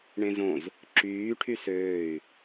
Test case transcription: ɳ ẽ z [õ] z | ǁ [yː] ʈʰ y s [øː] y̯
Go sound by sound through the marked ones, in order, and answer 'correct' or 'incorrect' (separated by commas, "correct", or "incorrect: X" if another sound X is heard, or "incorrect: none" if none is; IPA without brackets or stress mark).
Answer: correct, correct, correct